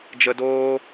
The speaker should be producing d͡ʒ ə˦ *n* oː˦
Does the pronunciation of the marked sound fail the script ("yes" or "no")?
yes